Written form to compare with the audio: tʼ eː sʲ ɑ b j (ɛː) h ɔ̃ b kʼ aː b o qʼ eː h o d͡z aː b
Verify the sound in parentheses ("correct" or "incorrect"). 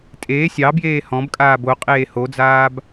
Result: incorrect